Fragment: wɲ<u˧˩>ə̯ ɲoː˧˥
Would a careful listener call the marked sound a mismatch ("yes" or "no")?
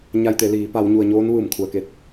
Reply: yes